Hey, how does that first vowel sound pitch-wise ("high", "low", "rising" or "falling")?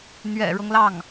low